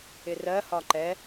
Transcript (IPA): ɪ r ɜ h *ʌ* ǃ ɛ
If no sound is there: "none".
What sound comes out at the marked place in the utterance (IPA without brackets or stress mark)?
ɒ